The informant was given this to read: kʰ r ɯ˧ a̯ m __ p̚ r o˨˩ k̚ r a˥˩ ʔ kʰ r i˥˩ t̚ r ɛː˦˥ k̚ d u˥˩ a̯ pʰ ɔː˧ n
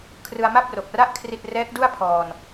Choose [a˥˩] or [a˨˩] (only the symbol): a˥˩